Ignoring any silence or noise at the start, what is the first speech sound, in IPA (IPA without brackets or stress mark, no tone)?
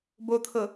b